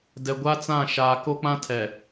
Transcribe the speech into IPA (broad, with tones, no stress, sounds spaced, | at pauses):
d ɛ˨ ɡʷ a˦ t͡s ã˦˨ ʃ a˦ k o˦ k͡p ã˦ tʰ ɛ˨